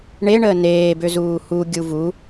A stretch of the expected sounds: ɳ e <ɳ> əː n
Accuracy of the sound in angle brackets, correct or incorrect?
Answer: correct